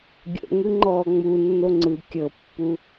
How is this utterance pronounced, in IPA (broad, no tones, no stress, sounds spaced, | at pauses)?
ɡʲ o̰ ŋ ɯ ŋ͡ǃ ɔː ŋ͡m u nː o ŋ͡ǀ ɯ kʲ ɤ pː u